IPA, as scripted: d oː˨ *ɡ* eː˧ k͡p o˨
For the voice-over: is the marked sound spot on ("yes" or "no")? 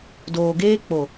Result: yes